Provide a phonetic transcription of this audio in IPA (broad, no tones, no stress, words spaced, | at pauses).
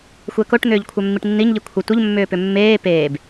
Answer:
xʷɛkoʈn̪ʏːʎkʷʰœ mːiʈnːiɲʎi kʷʰə tʷəʎmːʏːpʏ mːeː peːb